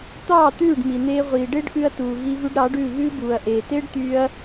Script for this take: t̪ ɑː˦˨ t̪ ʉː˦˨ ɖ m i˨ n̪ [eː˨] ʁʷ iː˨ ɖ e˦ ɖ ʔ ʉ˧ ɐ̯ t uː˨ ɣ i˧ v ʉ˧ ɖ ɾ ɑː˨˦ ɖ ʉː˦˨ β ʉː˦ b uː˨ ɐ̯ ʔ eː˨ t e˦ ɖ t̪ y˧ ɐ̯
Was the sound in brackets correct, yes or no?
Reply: no